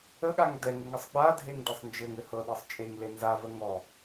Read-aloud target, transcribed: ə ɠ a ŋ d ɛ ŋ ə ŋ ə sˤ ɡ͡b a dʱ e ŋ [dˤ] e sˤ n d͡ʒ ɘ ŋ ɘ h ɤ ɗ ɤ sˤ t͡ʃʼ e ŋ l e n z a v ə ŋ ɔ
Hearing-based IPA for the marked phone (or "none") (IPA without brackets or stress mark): d